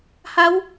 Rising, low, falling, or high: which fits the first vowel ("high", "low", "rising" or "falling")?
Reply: rising